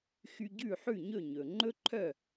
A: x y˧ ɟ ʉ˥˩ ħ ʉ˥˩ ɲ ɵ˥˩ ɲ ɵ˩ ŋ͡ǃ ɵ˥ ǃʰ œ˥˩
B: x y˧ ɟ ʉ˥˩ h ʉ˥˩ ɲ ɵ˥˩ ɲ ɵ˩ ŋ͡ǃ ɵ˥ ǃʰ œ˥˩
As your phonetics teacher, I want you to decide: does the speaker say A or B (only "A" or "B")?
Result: A